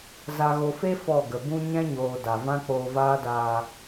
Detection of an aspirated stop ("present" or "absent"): absent